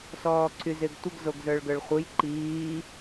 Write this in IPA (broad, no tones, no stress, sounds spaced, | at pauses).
s ɔː ǀʰ y z ɪː ɡ tʷ ɪ ɡ z o ɡ z ə˞ ɭ ɡ ə˞ ɭ χʷ ɯ j ǃ iː